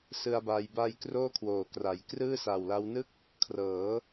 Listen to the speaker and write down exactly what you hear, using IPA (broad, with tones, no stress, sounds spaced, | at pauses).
s ɯ˧ a̯ b a˧ j b a˧ j k r oː˥˩ kʰ w oː˨˩ k r a˩˦ j k r ɯː˥˩ s a˨˩ w l a˦˥ w n ɯ˥˩ k̚ | kʰ r ɤː˩˦